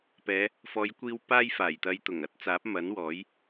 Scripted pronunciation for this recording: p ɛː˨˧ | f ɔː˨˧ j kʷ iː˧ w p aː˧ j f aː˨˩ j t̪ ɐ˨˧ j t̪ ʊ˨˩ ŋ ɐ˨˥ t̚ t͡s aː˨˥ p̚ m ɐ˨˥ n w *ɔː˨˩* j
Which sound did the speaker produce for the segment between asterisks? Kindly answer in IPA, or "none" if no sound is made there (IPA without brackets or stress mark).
ɔː˨˥